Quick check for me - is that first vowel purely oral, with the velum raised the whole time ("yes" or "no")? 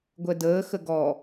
yes